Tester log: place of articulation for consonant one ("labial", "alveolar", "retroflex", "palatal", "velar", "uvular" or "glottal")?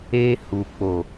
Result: glottal